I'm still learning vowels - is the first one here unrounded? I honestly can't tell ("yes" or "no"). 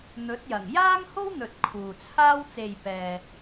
no